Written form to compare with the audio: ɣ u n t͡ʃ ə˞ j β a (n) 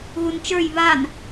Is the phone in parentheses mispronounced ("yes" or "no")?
no